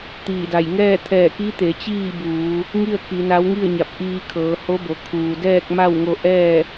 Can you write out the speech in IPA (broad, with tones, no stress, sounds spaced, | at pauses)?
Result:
t̪ iː˧˩ d a˧˩ j ŋ ɛː˥˨ t̪ʰ ɛː˧˩ k i˧˥ t̪ e˩˧ t͡ɕ iː˥˨ b uː˩˧ | ŋ i˥˨ ə̯ k i˩˧ n a˧˥ w ŋ i˥˨ ə̯ ɲ a˧˩ p̚ ʔ iː˧ kʰ ɤː˩˧ h o˧˥ b o˩ kʰ uː˩ d ɛː˥˨ k̚ m a˥˨ w ŋ o˧ ʔ ɛː˥˨